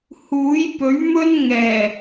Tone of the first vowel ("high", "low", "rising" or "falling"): rising